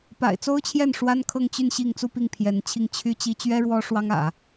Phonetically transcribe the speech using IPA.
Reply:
p a̰˨˩ ɪ̯ t͡s o˥ ʊ̯ t͡ɕʰ j ɛ˥˩ n ʂ w a˥ n kʰ ɤ˥˧ ŋ t͡ɕ y˥˧ n ɕ i˥˧ ŋ t͡s u˥˧ p i˥˩ ŋ pʰ j ɛ˧˥ n t͡ɕʰ i˥˩ ŋ t͡ɕʰ y˥ t͡ɕ i˥ t͡ɕ ɥ ɛ˥ ɻ w ɔ˥ ʂ w ɑ˥ ŋ ä̰˨˩˦

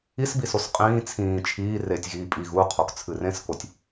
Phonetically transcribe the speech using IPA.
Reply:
i s b i s o s qʼ ĩː t͡sʰ ĩː t͡ʃʰ iː r e tʲ ɣ iː pʼ i ɣ u qʰ o k t͡sʰ ɨ r ẽ s k o tʲ

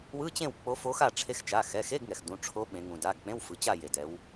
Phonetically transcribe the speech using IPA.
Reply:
w ɯ˧˥˧ t͡ɕ ẽ˥˨ w k͡p o˧˥ f o˧˥ x a˥˨ ʈ͡ʂʰ e˧˥˧ x t͡ʃ a˩˧˩ x ɛ˩˧˩ x e˧˥˧ ɡ ŋ ɛ˩ x d ũ˩˧˩ ʈ͡ʂʰ o˧˥ ɓ ẽ˩˧ ŋ ũ˩ d a˩˧˩ ɡ k͡p ẽ˧˥˧ w f ɯ˩˧ t͡ɕ a˥˨ j e˩ d ɛ˩˧ w

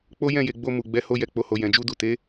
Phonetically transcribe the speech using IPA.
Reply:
k͡p o˦ j ɛ̃˦˨ j e˨ ɡ͡b o˧ m u˨ ɡ͡b ɛ˨˦ h o˧ j ɛ˨ k͡p o˨ h o˨ j ɛ̃˨ d͡ʒ u˧ d u˨ t e˨˦

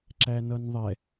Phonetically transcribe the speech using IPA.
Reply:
ǁ æ n ʌ n ðˤ ɛ

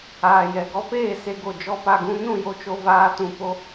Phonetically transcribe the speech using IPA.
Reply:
aː˨ j ɛ˨ ɡ ɔ˦ p eː˦˨ s e˧ ɡ o˨ d͡ʒ ɔ˦ p a˧ ɡ ũ˦ n ũ˦˨ j o˦ t͡ʃ o˧ v aː˧ t ũ˧ p o˦

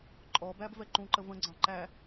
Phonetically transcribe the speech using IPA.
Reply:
ǃʼ ɔ b æ b v ɛ ǃ ũ ǃ ə v ə̃ ɡ͡ǀ ɑ̃ ǃ æ

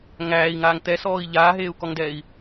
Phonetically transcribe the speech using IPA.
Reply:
ŋ æː i̯ ŋ aː ŋ t̪ ɛ s ɔː i̯ ʎ aː ɦ eː u̯ k ɔ ŋ d ɛː i̯

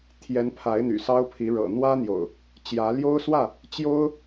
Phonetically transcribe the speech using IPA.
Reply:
t̪ʰ j ɛ˨˦ n pʰ a˨˦ ɪ̯ n̪ y̰˨˩ s ɑ˦ ʊ̯ pʰ i˨˦ ɻ ɤ̰˨˩ n̪ w ä˦ n̪ j o̰˨˩ ʊ̯ | t͡ɕ j ä˨˦ l j o˦ ʊ̯ s w ä˥˨ | t͡ɕ j o˦ ʊ̯

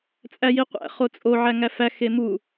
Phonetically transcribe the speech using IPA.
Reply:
t͡sʼ æ j i qʷ æ̰ χ o t͡sʼ o ʕ æ ŋ æ f æ x e m u

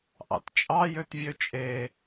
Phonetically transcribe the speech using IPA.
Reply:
ʔ ɑ̰ t t͡ʃʼ ɑ j ø t vʲ ø t͡ʃʼ e

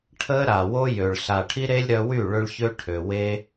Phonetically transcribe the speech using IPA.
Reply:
ʈʰ ə˦ ɾ a˨ w o˦ j ø˨ ɭ ɬ a˨ ʈʰ i˦ ɾ e˦ lʲ ɾ œ˧ w y˦˨ ɭ ø˦ ɭ ç ø˦ ʈʰ ø˨ w e˦

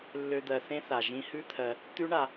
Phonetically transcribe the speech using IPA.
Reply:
lː ø˧ d̪ ɜ˨ θ ẽ˦ θ a˨ ʒ ĩ˧ h ʉ˦ t̪ʰ ɜ˧ | t̪ ʉ˦ ɳ a˧

